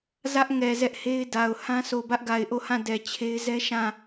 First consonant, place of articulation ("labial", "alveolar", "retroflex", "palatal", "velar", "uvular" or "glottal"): alveolar